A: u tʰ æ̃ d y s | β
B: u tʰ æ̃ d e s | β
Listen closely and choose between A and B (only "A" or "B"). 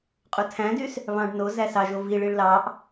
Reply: A